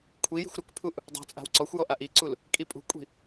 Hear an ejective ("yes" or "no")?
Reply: yes